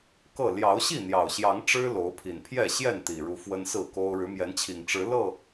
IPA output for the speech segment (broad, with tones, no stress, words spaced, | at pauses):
kɤ˥˨ ljɑ˨˦ʊ̯ɕi˥˨n̪jɑ˨˩ʊ̯ɕjɑ˨˦ŋ ʈ͡ʂɻ̩˦lo˨˦ʊ̯pʰi˨˩npʰjɛ˥˨ ɕjɛ˥˨nt̪i˨˩ɻu˨˦ fwə˦nsɹ̩˥˨ko˦ʊ̯ ɻɻ̩˨˦mjɛ˨˦nt͡ɕʰi˨˩ŋ ʈ͡ʂɻ̩˨˦ lɤ˥˨